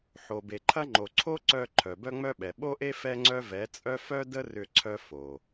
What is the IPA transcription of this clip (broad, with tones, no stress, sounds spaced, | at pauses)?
ħ o˨ b e˨ ǃʰ ɐ˦ ŋ͡ǃ o˨ ǀʰ o˦ ǀ œ˧ ǃʰ œ˨ b œ˦ ŋ͡m œ˦ ɓ ɛ˨ ɓ o˦ ʔ e˦ f ɛ˦ ŋ͡ǀ œ˦ v ɛ˨˦ t͡sʼ œ˦ f œ˦ d ə˦ r ʏ˧ ǀʰ œ˧ f o˨